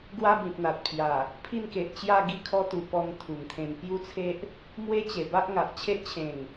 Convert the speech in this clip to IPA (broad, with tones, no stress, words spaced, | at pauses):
ɡwa˦bĩ˨p̚n̪a˨t̚pʰja˨˩ | pʰi˥˧nke˨ʔt͡ɕja˥˧ɡi˥˧ kʰɔ˦t̪u˨˩pɔ˧ŋ t̪ʰu˨˩ŋt̪ʰẽ˧n pju˦t͡sʰe˦ʔ | mwe˦t͡ɕe˨˩ba˦ʔŋa˨ʔ t͡ɕʰe˦ʔt͡ɕʰẽ˨˩ŋ